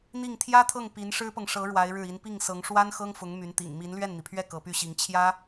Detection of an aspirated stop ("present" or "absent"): present